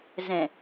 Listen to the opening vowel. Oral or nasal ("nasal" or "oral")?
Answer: nasal